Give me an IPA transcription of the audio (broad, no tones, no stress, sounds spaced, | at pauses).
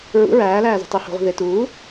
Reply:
ɹ ṵ ɹ æː l æː z o̤ tˤ i h o̤ ʁʷ i̤ ð e t uː